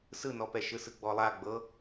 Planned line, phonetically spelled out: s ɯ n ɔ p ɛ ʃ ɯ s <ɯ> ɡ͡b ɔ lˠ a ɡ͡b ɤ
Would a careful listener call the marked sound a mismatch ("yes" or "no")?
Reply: no